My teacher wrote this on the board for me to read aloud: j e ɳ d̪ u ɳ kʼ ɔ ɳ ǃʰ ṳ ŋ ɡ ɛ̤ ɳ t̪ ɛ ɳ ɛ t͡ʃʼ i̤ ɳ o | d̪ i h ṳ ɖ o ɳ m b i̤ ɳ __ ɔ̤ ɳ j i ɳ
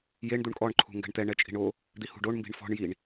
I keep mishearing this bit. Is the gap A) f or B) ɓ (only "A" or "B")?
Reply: A